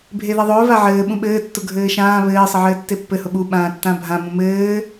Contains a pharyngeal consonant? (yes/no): yes